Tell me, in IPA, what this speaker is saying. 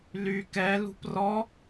l y k ɛ l ṳ p r ɔ

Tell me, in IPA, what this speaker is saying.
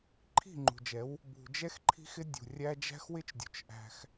ǃʰ i̤˦˨ ŋ͡ǃ ṳ˨ d͡ʒ ɛ˨˦ w | b ṳ˨ d͡ʒ ɛ˦ x ǃʰ i̤˦ x ɪ˦ dʲ ṳ˨ rʲ æ˦ d͡ʒ æ̤˦ x w ɪ˦ t͡ʃ dʲ ṳ˨ t͡ʃ ʔ æ̤˦ x

